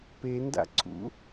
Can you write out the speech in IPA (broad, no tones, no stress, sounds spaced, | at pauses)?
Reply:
p e n d a̰ ǀʰ ṵ